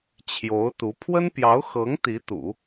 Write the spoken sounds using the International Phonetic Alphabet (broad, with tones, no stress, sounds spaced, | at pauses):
t͡ɕʰ j o˧˥ ʊ̯ t̪ u˧˥ pʰ w ə˥ n p j ɑ˧˥ ʊ̯ x ɤ˧˥ ŋ t̪ i˧˥ t̪ ṵ˨˩˦